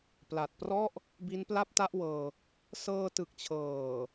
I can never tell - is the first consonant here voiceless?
yes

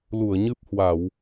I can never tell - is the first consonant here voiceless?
no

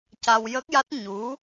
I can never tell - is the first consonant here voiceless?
yes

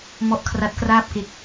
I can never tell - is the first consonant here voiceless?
no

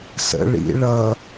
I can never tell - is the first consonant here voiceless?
yes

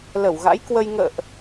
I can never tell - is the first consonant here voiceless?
no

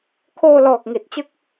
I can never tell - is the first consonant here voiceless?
yes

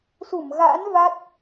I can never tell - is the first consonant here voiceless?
yes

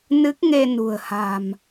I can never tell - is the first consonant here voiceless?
no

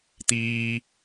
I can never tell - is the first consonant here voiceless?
yes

